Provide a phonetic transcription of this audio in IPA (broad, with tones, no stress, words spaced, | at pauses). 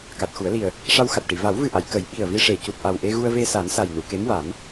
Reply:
ka˨˩t̚xu˨˩˦ə̯li˨˩ə̯ | ʂa˧wxa˨˩t̚ʈi˨˩˨ va˨˩˦wvɨ˨˩ʔa˨˩˨j kə˨˩˦jɓi˨˩ə̯vi˧ ʂe˨˩˨cu˨˩t̚ʔa˨˩w ʔe˧ɣu˧ə̯ve˧sa˨˩˦n sa˨˩jnu˨˩˨ke˧˥mwa˨˩˦m